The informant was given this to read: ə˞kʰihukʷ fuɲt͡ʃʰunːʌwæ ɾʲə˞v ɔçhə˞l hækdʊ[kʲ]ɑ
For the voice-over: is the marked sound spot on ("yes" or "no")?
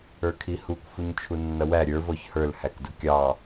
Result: yes